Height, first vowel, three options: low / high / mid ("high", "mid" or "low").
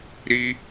high